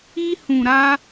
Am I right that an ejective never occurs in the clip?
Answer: yes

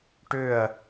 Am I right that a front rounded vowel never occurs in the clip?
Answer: no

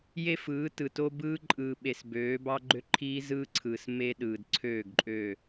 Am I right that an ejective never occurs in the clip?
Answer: no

